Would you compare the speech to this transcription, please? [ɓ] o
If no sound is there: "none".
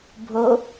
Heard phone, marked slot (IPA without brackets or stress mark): bʱ